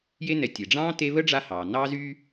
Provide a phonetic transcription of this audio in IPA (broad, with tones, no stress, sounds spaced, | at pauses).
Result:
j e˦ n ɛ˨ tʲ e˩ ɖ͡ʐ ɑ̃ː˥ t e˦ β ə˥ ɖ͡ʐ a˦ h ɑː˩ n ɑː˥ z y˥